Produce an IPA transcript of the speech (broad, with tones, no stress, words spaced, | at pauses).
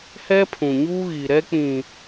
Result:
hɛ˦pʰũ˨ɲuː˦ ɣi˨ɾɛ˦k͡pĩ˨